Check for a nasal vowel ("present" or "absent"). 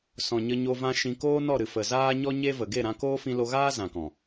present